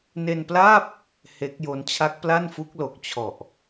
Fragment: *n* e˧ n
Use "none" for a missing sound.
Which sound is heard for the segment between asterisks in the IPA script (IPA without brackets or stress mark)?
n